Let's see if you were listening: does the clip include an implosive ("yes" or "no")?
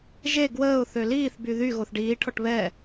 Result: no